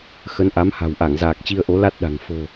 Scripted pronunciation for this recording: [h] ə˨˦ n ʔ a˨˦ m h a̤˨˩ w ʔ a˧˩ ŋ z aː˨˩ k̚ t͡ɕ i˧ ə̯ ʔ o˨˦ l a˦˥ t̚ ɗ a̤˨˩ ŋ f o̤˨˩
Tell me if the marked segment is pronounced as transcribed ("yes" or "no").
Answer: no